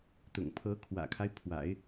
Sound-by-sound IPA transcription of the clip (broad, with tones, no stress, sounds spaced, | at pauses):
t̪ ʊ̰˨˩ ŋ pʰ ɤ˧˥ kʰ w ä̰˨˩ kʰ a˦ ɪ̯ pʰ w a̰˨˩˦ ɪ̯